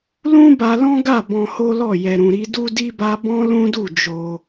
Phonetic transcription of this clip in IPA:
l ũ˦ b a˧ l ɔ̃˦ ɡ a˦˨ b ɔ̃˧ h o˦ l ɔ˦˨ j ɛ˨ ɾ ũ˨ ɾ i˧ d u˦ d i˦ b a˦ b ɔ̃˦ l ũ˦ d u˦˨ d͡ʒ o˧

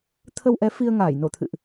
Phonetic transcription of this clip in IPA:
t̪ʰ ə˧ w ʔ ɛ˨˦ f i˧ ə̯ ŋ aː˧˩ j n o˧˩ t̪ʰ ɨ̰˧˨ ʔ

